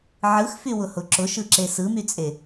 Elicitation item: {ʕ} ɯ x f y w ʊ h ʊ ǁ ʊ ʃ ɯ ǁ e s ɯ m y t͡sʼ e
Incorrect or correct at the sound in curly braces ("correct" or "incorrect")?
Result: correct